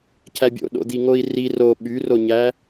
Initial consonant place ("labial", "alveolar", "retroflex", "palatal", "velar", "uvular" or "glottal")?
palatal